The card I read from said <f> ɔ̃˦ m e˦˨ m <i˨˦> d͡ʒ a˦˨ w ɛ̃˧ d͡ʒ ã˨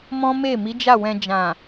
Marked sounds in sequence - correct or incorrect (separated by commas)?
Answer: incorrect, correct